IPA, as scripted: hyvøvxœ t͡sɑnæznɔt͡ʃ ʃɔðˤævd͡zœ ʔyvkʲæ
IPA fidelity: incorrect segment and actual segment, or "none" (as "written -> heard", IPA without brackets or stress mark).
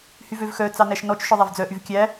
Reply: z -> ʃ